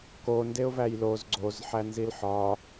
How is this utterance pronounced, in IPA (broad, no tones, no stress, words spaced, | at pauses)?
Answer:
ko ndeʊ̯væjloz ɡ͡ǀozħænzil ħɒ